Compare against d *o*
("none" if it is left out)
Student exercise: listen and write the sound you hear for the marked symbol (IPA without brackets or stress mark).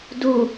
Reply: u